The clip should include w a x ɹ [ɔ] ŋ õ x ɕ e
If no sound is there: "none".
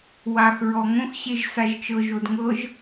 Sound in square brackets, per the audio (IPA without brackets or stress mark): ɔ